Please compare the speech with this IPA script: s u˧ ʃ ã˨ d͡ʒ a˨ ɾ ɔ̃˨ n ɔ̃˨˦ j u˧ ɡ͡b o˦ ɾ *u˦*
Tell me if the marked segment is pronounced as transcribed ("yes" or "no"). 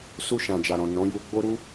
yes